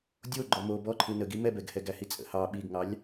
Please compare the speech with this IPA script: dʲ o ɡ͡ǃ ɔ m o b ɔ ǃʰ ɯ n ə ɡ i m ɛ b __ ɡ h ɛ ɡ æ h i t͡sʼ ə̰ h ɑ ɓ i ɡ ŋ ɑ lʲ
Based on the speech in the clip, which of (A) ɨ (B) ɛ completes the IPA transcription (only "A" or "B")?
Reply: B